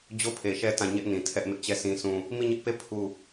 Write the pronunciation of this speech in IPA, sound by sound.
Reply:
d͡ʑ o˦ pʰ e˨ ʃ ɛ˦ t ã˦˨ ɲ ɛ˦ ʔ n ĩ˨ tʰ ɛ˦ ʔ m ɪ˦ ʔ t͡ɕ ɛ˦˨ sʰ ĩ˦ s ũ˦ | m i˦˨ ɲ ɪ˦ ʔ p e˦˨ pʰ u˦˨

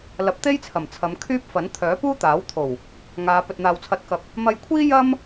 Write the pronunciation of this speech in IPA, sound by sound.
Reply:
l ɐ˨˥ p̚ t̪ e˥ j t͡sʰ ɐ˨˩ m t͡sʰ ɐ˨˧ m kʰ yː˥ p̚ f ɐ˨˥ n t̪ʰ œː˨˥ p uː˥ t̪ aː˨˥ w t̪ʰ o˨˩ w | ŋ aː˨˧ p ɵ˨ t̚ n̪ aː˨ w t͡sʰ ɐ˨˥ t̚ k ɐ˧ p̚ | m ɐ˧ j kʷʰ iː˥ j ɐ˥ m

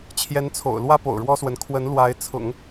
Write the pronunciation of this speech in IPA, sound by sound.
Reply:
t͡ɕʰ j ɛ˧˥ n t͡sʰ o̰˨˩ ʊ̯ l w ä˥ p o̰˨˩ ʊ̯ ɻ w ɔ˥ s w ə˧˥ n kʰ w ə˧˥ n l w a˧˥ ɪ̯ t͡sʰ ʊ̰˨˩˦ ŋ

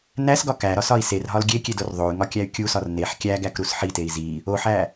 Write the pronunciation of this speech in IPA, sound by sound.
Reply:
n æ s ɡ ɒ k æ ɾ ɒ s ɒ i̯ s e r ɦ ɒ l ɡʲ e kʲ e d o r ðˤ o y̯ ŋ ɒ kʲ æ y̯ kʲ u s ɒ r n e ħ kʲ æ ɡ æ k ɾ u s ħ i t e i̯ z i | o ħ æ

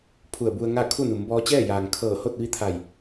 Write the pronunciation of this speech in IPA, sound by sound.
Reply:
pʰ u˧˩ ə̯ b u˧ ə̯ ŋ a˥˨ kʰ u˥˨ n u˩˧ m b ɔː˧ t͡ɕ ɛː˥˨ j aː˩ ŋ kʰ ɤː˧˩ h o˥˨ t̚ ʋ i˧˥ t̪ʰ a˧˩ j

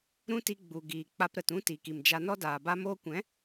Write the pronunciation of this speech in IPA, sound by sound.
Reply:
ɾ ũ˦ t i˧ ɡ͡b u˨ ɡ iː˨ k͡p a˧ p ɾ ə˨ t ũ˦ t i˨ k i˨ m d͡ʒ a˧ n ɔ˦ d aː˨ b a˦ m oː˦ kʷ ɛ̃˨˦

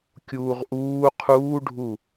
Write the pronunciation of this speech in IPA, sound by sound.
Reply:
kʲ uː ʁ ʔ uː qʰ uː ɖʱ u

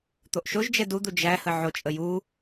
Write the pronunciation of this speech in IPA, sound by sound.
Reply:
t̪ o ʔ ʃ o ʒ d͡ʒ ɛ d u d̪ u d͡ʒ æ h ə ʕ o t͡ʃʼ ə j u

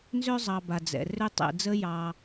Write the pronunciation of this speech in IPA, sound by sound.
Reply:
n z ø˥ zˤ ɑ˨ b a˩ d͡z ɛ̰˩ r ø˦ tˤ ɛ̰˨ d͡z ə˦ j ɑ˨

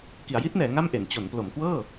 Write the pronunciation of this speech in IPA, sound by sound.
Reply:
k i˩˦ a̯ j i˦˥ t̚ n ɛː˩˦ ŋ a˥˩ m ʔ e˩˦ n t͡ɕ o˩˦ n p l o˩˦ m k w ɤː˥˩

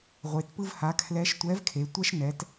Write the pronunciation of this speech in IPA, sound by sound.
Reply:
ʁʷ e˩ t p ɯ˧ v h a˩˧ kʰ l ɛ˧˥ ʃ tʷ ɛ˧˥ v kʰ e˩˧ tʷ ɛ˥ ʃ n ɛ˩˧ t

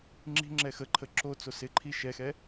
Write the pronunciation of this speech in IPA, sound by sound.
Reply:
ŋ͡ǁ i̤ ŋ͡ǁ ɛ x ə ǃʰ ə ǁ o t͡s o s ɪ ǃʰ i ʃ ɛ x ɛ

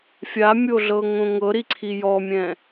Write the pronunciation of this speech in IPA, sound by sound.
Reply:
fʲ a mʲ o ɮ ɤ ŋ õ ŋ ɤ ɾ i ǀʰ i j ɔ mʲ ɛ̃

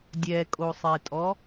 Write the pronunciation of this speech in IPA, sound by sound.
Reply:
dʲ ɛ kʼ o sˤ e tʼ ɔ

